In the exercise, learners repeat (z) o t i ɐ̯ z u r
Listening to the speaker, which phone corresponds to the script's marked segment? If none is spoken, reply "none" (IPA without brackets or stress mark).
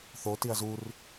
θ